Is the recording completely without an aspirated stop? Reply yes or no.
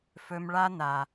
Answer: yes